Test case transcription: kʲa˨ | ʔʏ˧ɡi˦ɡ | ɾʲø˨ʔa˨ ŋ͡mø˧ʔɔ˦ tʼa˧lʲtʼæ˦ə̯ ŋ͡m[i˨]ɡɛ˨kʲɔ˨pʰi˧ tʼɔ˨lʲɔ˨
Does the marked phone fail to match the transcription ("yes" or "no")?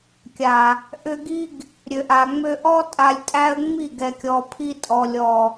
yes